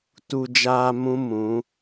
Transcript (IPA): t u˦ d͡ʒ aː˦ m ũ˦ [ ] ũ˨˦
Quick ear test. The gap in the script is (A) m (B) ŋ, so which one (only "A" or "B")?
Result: A